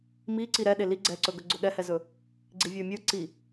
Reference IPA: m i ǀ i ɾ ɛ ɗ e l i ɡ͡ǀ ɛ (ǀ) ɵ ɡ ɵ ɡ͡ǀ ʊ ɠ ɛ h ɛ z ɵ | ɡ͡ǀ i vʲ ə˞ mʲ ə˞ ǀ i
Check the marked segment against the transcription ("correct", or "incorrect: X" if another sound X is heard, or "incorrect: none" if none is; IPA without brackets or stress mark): correct